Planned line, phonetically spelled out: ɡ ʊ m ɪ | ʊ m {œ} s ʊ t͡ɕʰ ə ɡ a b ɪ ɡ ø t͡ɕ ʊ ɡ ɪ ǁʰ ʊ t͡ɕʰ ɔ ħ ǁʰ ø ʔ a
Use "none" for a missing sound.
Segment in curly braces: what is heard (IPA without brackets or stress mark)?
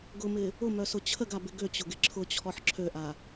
œ